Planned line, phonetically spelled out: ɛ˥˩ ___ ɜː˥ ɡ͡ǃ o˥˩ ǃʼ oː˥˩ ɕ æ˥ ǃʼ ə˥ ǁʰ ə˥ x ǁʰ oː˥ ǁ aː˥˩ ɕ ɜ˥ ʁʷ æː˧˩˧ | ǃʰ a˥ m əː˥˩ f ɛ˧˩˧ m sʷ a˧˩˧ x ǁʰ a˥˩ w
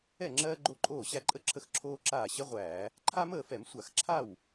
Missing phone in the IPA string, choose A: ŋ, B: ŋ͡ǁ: B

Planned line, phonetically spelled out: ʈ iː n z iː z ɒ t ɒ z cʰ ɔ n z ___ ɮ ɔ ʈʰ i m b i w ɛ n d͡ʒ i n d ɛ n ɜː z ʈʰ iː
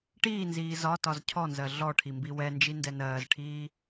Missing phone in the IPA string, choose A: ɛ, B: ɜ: B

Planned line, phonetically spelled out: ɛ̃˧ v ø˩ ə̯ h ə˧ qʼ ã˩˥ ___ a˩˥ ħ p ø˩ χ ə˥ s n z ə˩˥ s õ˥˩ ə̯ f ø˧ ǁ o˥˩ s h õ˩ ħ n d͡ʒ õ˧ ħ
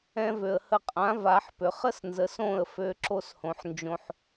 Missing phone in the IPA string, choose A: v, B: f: A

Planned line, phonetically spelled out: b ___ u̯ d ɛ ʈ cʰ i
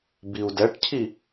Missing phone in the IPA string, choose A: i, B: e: A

